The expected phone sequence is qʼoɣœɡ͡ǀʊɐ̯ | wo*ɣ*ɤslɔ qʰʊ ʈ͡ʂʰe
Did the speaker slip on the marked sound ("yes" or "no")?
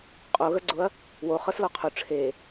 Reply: yes